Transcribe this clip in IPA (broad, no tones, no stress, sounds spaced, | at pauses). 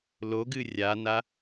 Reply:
l o ɡ ɨ rʲ a n a